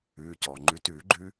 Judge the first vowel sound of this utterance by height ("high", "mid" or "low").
high